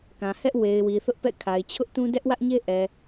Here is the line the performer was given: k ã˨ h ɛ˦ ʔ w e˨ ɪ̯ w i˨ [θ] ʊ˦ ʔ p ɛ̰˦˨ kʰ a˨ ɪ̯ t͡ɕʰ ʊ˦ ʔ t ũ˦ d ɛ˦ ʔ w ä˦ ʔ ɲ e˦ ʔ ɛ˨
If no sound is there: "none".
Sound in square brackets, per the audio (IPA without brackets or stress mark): θ